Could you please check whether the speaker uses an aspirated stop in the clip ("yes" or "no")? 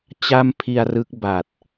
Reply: yes